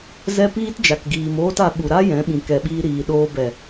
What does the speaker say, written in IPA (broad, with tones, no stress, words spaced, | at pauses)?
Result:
zɛ˦piː˦t d͡ʒa˨kɡiː˨moː˦ta˧ ɓu˨ɾa˦ jɛ̃˨˦ɓĩ˨kɛ˨ɓiː˧ ɾiː˨ɗoː˧bɛ˨